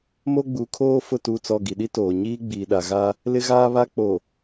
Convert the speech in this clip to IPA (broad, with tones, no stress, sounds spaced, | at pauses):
m o˦ ɡ͡b u˨˦ kʰ oː˦ f ʊ˦˨ t u˦˨ t͡s ɔ˦˨ ɡ i˨ ɗ i˦ t oː˨ ɲ iː˦ ɡ͡b iː˨ ɗ a˨ ɣ a˦ | l ɪ˦ ɣ aː˦ β a˦ k͡p o˨